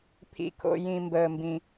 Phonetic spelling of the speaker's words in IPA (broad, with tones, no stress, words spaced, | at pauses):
pʰḭ˩kʰo̰˩ jĩ˩mbəː˩mbĩ˩